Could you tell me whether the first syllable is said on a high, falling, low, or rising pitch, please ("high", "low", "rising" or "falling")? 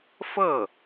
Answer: falling